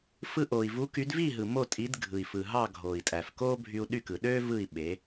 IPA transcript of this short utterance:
f ɯ˧ ʔ oː˩ i̯ v u˩˥ k y˩˥ d v i˥˩ ɦ ɯ˩ m o˥˩ tʼ i˩˥ d ɡʱ ɯ˩ i̯ f ɯ˩ ɦ ɑ˥˩ ɡʱ oː˩ i̯ tʼ æ˩ f k oː˥ bʱ y˧ u̯ ɗ y˥˩ k ɯ˩ ɗ øː˥ v ɯ˥˩ i̯ ɓ e˩˥

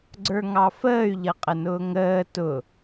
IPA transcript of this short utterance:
ɡ͡ǀ ə˞ ŋ ɑ f əː y̯ ʎ ʌ qʼ ə n ʊː ŋ əː t ʊ

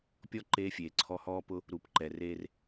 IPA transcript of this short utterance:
pʲ ɔ˦ ǃ eː˦ fʲ eː˨ ǀʰ ɔ˦ h ɔː˦ p ʊ˦ | ɾ u˨ p ǃ ɛ˨ r eː˦ r

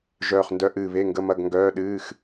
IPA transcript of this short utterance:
ʒ œː˧˩ χ n d œ˧˥˧ ʔ ɨː˧˩ β e˧˥˧ ŋ ɡ ə˧˥˧ m ɐ˧˥˧ ɡ ŋ ɡ œː˧˥˧ ɗ ɨː˧˥˧ x

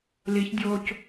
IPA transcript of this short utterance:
l i ç dʲ oː c

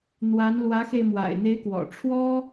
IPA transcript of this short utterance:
n̪ w a˧˥ n l w ä˧˥ x e˧ ɪ̯ m w a̰˨˩ ɪ̯ n̪ e˧˥ ɪ̯ k w ɔ̰˨˩ ʈ͡ʂʰ w ɔ˥

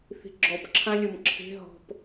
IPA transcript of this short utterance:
θ i̤ ɡ͡ǁ ɔ p ǁʰ ã lʲ o m ǁʰ e̤ ɦ ɔ̤ p

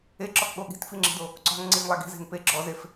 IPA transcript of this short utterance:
e ǁ ɔ k ɠ o ɠ i̤ t f i ŋ͡ǁ i̤ d o | ǀ ɔ̤ ŋ ŋ͡ǀ i ŋ lˠ a ɡ i̤ z e̤ ŋ p e ɡ͡ǁ ɔ z e f

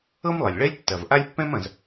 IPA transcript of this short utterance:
ɤ˥ m lˠ e˩ lʲ ɭ ɛ˥ lʲ tː ɐ˩ v ʔ a˥ lʲ pː ɛ̃˥ m ɐ̃˩ z

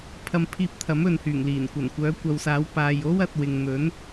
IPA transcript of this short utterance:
pʰ ɐ˧ m pʰ iː˧ p̚ t̪ʰ ɐ˨˥ m ɵ˨ n h yː˨˩ ŋ l iː˨˩ n kʷ ɐ˨˩ n kʷ œː˨˥ kʷ ɐ˨˧ w s aː˨˥ w p aː˨ j o˥ w ɐ˨˥ t̚ w ɪ˧ ŋ n̪ ɵ˨˥ n

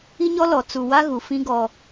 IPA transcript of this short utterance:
i˦ ɲ ɔ˦ l ɔ˨ t͡s u˨ w a˦ ɣ u˨ f ĩ˦ ɡ ɔ˨

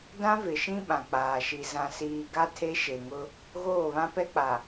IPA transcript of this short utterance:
d ã˦ v ɪ˨ ʃ ĩ˦ ɓ ã˨ k͡p aː˨ ʃ i˨ z ã˨ s iː˨ ɡ a˦ tʰ e˦ ʃ e˨ ŋ ʊ˦ | ɣ oː˦˨ β ã˦ p ɛ˦ k͡p a˨

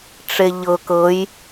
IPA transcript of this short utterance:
ʈ͡ʂ e ʎ ɤ k ɤ j

